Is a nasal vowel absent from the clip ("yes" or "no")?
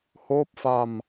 yes